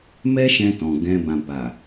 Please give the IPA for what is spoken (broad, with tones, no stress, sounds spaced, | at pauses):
m ɛ˦ ʃ ɛ̃˧ t ɔ̃˨ ɡ ɛ̃˧ b ã˨ b a˨